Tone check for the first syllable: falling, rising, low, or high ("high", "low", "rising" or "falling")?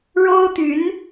high